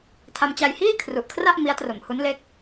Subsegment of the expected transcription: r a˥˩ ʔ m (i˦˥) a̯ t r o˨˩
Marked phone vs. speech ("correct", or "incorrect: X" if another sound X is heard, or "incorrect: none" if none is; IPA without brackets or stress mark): correct